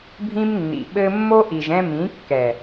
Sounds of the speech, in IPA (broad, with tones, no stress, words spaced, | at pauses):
bʱĩ˦mnːḭ˨ɓɘ˦ mːo˦ʔi˨ʒɛ̃˧ mĩ˨˦kːɛ˨